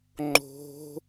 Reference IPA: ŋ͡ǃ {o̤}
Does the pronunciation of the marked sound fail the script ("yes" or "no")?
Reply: no